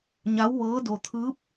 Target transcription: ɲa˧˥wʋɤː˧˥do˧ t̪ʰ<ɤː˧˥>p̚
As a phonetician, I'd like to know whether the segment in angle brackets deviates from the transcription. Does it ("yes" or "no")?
yes